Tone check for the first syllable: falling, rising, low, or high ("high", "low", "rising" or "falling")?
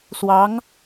rising